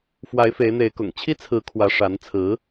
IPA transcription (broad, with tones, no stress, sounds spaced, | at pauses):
f w a˧˥ ɪ̯ f e˧˥ ɪ̯ n̪ e˧˥ ɪ̯ k ʊ̰˨˩ ŋ t͡ɕʰ i˥ t͡sʰ ɹ̩˧˥ kʰ w ä˧˥ ʂ a˧˥ n t͡sʰ ɹ̩˧˥